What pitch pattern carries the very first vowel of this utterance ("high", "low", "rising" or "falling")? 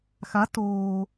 rising